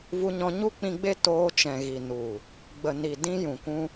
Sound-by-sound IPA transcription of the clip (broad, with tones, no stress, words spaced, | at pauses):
vu˧ɲɔ̃˧ ɲu˦k͡pĩ˧ɡ͡be˦ toː˧t͡ʃɛ̃˨ɣi˨ nu˨ | ɡ͡bə˨ni˨ dĩ˧jũ˨ kʷũ˦